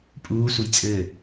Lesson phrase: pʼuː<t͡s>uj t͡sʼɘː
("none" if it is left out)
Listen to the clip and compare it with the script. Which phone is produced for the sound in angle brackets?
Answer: s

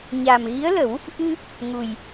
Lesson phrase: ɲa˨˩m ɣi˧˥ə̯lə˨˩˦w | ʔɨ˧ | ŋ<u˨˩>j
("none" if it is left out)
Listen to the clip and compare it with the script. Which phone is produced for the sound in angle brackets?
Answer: u˨˩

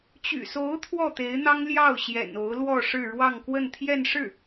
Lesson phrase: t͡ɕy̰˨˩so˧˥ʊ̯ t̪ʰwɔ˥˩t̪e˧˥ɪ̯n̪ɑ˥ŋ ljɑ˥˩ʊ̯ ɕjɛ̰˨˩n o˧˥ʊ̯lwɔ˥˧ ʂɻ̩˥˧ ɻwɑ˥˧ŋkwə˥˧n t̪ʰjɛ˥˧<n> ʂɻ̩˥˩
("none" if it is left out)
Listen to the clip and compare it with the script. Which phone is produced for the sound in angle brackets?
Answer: n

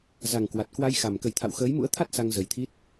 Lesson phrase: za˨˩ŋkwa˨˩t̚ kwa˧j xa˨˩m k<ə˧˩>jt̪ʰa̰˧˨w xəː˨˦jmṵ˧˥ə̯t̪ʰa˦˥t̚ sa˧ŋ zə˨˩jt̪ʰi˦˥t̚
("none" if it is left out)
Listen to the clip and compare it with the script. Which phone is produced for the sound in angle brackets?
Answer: ə˧˩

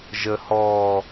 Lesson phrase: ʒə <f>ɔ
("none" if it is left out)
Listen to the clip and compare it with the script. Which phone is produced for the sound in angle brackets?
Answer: h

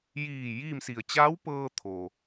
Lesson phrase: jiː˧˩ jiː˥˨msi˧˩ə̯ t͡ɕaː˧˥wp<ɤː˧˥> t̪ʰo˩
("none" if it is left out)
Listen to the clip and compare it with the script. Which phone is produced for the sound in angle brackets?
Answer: ɤː˧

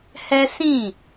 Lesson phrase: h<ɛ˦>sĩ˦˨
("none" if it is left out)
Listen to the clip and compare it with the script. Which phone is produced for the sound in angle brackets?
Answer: ɛ˦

